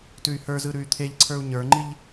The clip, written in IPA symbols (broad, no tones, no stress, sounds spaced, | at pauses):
t ʉ y̯ h ə˞ z ɯ ɾ ʉ y̯ t̪ʰ e ʎ ǀʰ ə˞ u̯ ɲ ə˞ ŋ͡ǃ i ʎ